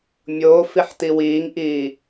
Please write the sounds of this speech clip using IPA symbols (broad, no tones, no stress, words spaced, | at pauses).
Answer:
mʲoːf iħtiwiːŋʔiː